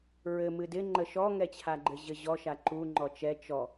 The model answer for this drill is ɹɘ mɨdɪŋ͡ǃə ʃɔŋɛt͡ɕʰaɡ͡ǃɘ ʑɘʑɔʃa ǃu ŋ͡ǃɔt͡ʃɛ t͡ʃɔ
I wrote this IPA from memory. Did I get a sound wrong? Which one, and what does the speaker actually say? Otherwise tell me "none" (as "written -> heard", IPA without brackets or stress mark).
none